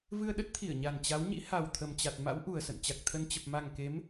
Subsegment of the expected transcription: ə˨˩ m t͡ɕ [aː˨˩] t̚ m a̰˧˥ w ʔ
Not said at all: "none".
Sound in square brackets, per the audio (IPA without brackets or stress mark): a˨˩